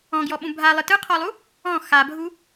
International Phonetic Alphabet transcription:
ɔ̃ ɡ j ɔ ɓ ũ bʱ a lˠ ɯ t ɯ qʰ ɔ lˠ u | ɔ̃ x a bʱ u

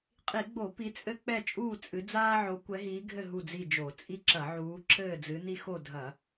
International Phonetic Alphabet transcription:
qʼ i˧˩˧ ɡ͡b o˧˩˧ p i˨˦ t͡sʼ ɘ˦ k͡p ɛ˦˨ t͡ʃʼ uː˦˨ t͡sʼ ɨ˨˦ d͡z aː˦ ʕ o˨˦ kʷ ɛ˨˦ ɦ iː˨˦ ɡʱ ɘ˦˨ ɦ u˦˨ d͡z i˦˨ d͡ʒ o˧˩˧ t͡sʼ i˦ ǁ ɐ˧˩˧ ʕ uː˨˦ ǁʰ ɘː˦˨ d͡z ɨ˨˦ n i˦ x o˦˨ dʱ ɐ˧˩˧

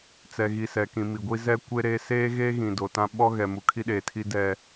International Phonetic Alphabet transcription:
t͡s ɛ˨ ɣ i˨ s ɛ˨ k ĩ˨ m i˨ ɡʷ i˦ z ɛ˦ kʷ e˦ ɾ e˦ s eː˦ ɣ eː˦ ɣ ĩ˨ d o˨ t ã˦ ɓ ɔ˦ ɣ ɛ˨ m u˨ kʰ i˦ ɗ eː˨ tʰ i˦ d ɛ˦

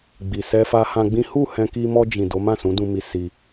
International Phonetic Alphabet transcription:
ɡ͡b i˨ s ɛ˧ f a˧ h ã˧ ɡ͡b ĩ˦ h u˦˨ h ɛ̃˧ k i˧ m ɔ˧ d͡ʒ ĩ˨ d o˨˦ m ã˦˨ s ũ˨˦ d ũ˧ m i˧ s i˧

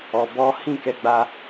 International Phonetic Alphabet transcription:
ɔ˨ b ɔ˨˦ h ĩ˦˨ k ɛ˨˦ ɡ͡b a˧

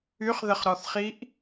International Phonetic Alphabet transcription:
y χ ð ə χ ɾ ɔ θ χ i ʔ

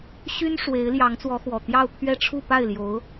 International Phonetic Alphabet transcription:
ɕ y˥ n ʂ w e˧˥ ɪ̯ l j ɑ˧˥ ŋ t͡s w ɔ˧˥ x w ɔ˨˩ t̪ j ɑ˥˧ ʊ̯ pʰ ɥ ɛ˥˧ ʈ͡ʂʰ u˥˧ p a˥˩ ɪ̯ l j o˧˥ ʊ̯

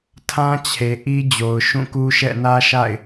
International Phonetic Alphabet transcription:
tʰ ã˦ t͡ɕʰ e˨ ʔ i˦ d͡ʑ o˨ ʊ̯ ʃ ũ˦˨ k u˦ ʃ ɛ̰˦˨ n ä˦ ʃ a̰˦˨ ɪ̯

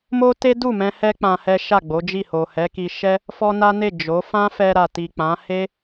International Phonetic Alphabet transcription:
m o˦ t e˦ d u˦˨ m ɛ̃˧ h ɛ˦ k͡p ã˧ h ɛ˦ ʃ a˦˨ ɡ͡b o˨˦ d͡ʒ i˦˨ h o˨ h ɛ˨˦ k i˧ ʃ ɛ˦ | f ɔ˦ n a˦ n e˦˨ d͡ʒ o˨˦ f ã˦ f ɛ˧ ɾ a˨ t i˨ k͡p ã˨˦ h e˦

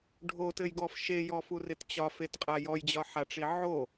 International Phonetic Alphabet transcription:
ɖʱ o t ɘ j ɡ ɔ f ʃ e j ɔ f u r ɪ t t͡ɕ ɒ f e t qʼ a j ɔ j d͡ʑ ɒ ħ a ʈ͡ʂ i ʕ o

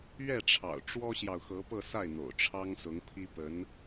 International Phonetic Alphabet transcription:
ɥ ɛ˥˩ ʈ͡ʂʰ ɑ̰˨˩ ʊ̯ ʈ͡ʂ w ɔ˥ ɕ j ɑ˨ ʊ̯ x ɤ˧˥ p ɤ˥˧ s a˥˩ ɪ̯ n̪ o̰˨˩ ʊ̯ ʈ͡ʂʰ ɑ˥ ŋ s ʊ˧˥ ŋ pʰ i˥ p ə˧˥ n

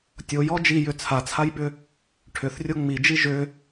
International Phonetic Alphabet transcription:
tʲ o j ɔ d͡ʒ i j ʏ t͡sʰ a t͡sʰ a j ɓ ʏ | ʈʰ ʏ θ rʲ o ŋ͡m i d͡ʒ i ʒ ʏ

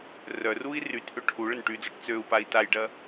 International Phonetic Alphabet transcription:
r œ r u i̯ r y t ʔ ø ʈʰ u ɭ ə n ʈ y d͡z ɔ ʈ t͡s ø u̯ p a i̯ t a j ɖ ɐ

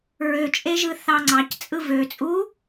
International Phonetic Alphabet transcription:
ɹ ø t͡ʃʼ e ʒ ɯ θ ɑ ŋ͡ǀ ɑ c t͡sʼ ɯ v ø t͡sʼ u

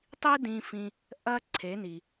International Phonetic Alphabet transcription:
tˤ i˥ d ĩ˧ f ĩ˧ | ʔ ɐ˧ ǀʰ e˩˧ n i˩

